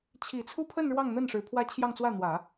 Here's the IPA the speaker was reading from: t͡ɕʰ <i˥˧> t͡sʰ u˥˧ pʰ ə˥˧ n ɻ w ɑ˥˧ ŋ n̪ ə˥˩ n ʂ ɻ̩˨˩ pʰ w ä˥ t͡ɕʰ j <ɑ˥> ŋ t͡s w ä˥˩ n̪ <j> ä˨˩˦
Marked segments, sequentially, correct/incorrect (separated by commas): incorrect, incorrect, incorrect